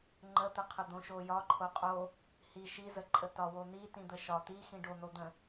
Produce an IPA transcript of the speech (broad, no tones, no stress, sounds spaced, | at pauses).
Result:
ŋ͡ǃ ə t̪ ə qʰ ə d̪ õ ʃ o j ɒ ǃʰ o qʼ o | h i ʃ i z ə ǃʼ ə t ɒ w o n̪ i t ĩ d̪ ə ʃ ɒ t̪ i x ĩ ɖ o n̪ o d̪ ə̃